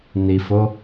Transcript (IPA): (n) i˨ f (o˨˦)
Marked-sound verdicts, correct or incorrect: correct, correct

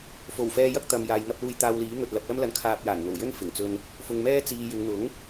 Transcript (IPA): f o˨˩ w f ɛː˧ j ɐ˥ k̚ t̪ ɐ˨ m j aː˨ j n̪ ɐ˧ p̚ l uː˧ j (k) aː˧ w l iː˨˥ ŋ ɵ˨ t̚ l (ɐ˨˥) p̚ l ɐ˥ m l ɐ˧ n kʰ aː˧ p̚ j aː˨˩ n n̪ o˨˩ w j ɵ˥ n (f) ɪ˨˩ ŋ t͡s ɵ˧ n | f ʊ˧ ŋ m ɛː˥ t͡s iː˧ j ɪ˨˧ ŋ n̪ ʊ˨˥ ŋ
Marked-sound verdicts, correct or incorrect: incorrect, correct, correct

